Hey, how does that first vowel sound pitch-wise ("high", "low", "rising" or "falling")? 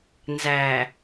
low